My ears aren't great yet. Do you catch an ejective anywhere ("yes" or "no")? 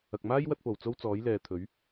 no